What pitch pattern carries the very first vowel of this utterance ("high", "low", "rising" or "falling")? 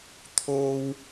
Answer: high